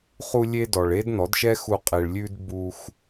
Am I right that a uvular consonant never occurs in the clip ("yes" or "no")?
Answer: no